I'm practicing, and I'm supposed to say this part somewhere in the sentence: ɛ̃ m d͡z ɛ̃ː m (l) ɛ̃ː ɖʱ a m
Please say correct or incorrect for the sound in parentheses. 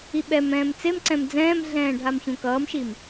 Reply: incorrect